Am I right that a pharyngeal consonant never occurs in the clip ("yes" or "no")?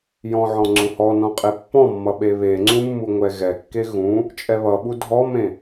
no